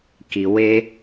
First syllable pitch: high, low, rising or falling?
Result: low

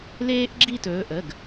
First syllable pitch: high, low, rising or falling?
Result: high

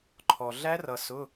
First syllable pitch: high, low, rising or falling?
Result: low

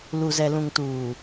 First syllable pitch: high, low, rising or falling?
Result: low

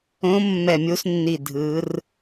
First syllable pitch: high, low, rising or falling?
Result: rising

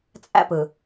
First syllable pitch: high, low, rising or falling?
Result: high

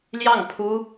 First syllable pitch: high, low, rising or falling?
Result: falling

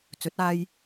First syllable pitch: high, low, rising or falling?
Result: rising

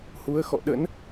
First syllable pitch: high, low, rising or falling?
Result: rising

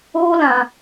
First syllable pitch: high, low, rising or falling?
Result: high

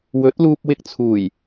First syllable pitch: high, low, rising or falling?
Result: rising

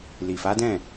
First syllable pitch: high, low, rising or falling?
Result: low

